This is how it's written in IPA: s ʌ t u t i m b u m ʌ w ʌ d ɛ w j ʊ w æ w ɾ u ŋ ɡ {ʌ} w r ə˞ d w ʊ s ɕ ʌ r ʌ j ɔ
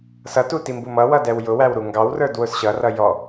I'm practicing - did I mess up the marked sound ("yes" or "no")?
yes